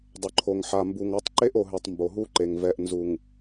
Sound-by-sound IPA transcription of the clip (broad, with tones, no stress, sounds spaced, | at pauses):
dˤ ʊ˨ ǃʰ o˨ ŋ ħ a˨ m b u˨ ŋ ɔ˨˦ tˤ ǃ e˦ ʔ o˨ ɦ e˨ tˤ m b o˨ ɦ u˦ ǃ e˨ ŋ v ɛ˨ ʔ n z u˨ ŋ